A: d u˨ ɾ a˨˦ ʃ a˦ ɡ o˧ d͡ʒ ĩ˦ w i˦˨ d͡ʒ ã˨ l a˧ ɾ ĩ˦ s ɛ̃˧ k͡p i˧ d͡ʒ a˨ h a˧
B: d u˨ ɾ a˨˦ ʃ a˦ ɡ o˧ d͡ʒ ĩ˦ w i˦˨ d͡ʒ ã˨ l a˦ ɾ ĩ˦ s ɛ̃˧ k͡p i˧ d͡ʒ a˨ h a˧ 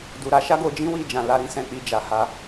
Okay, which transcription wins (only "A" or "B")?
A